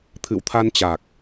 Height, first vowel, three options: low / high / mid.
high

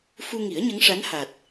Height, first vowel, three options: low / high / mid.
high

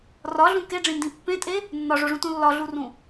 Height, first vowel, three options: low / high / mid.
low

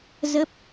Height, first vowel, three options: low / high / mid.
mid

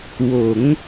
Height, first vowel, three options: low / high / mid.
mid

